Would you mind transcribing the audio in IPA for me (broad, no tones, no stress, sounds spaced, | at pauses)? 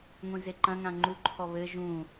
ŋʷ ĩ z e ǃ ɐ̃ ŋ ã ŋ͡ǃ u ǃʰ ɔ β ɘ ʒ ũ